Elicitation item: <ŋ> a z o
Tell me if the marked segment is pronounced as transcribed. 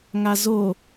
yes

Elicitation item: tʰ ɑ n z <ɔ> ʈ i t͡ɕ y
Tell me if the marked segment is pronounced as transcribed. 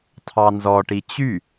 yes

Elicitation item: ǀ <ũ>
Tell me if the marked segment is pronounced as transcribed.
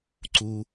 no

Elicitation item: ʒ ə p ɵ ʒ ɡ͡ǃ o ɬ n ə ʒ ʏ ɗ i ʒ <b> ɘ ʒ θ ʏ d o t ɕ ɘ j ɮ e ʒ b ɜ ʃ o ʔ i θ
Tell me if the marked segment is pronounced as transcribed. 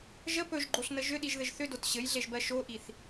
no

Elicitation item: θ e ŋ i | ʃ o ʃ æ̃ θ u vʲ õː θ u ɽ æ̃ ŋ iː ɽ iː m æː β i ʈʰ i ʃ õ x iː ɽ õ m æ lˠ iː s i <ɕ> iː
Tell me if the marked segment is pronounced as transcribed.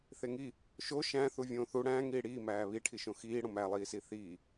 no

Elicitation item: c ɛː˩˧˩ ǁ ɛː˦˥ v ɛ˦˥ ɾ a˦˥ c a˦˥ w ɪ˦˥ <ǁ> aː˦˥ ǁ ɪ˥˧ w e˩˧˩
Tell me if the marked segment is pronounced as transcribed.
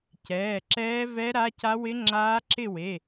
no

